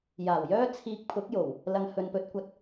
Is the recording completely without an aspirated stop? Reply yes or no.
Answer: no